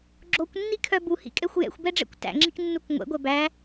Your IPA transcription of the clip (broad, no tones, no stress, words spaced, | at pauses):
ɡ͡ǁokʷnːikʰœ buhḭkʼɛxʷ jɛ̰xʷbɛɖ͡ʐɛ̰kʷ tæ̰ŋ͡ǁiknːuk ŋʷɛ̰ɡʷɛ bæ